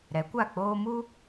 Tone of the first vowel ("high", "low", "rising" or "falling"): rising